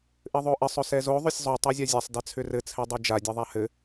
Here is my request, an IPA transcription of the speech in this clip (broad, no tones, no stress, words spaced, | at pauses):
ʔɘðˤoʔɘsˤ ɵsɛzo ðˤɵsʲzˤo tˤæzʲazʲasˤ dɛt͡sʰʏrɘ t͡sʰɛdˤed͡ʒa dʲeðˤahɘ